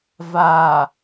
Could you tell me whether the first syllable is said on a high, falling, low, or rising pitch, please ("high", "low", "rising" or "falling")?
low